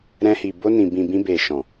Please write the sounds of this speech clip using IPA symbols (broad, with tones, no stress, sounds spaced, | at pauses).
ɾ ɛ̃˧ h i˨ b o˧ n ĩ˨ b ĩ˨ b ĩ˧ b e˨ ʃ ɔ̃˨